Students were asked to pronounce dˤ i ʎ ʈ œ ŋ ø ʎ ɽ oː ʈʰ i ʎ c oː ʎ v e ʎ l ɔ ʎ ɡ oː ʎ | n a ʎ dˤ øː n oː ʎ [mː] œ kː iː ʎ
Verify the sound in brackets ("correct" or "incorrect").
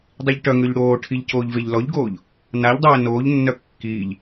incorrect